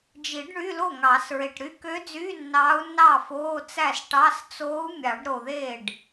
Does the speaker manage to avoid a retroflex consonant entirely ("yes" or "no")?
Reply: no